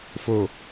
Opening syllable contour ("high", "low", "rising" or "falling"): low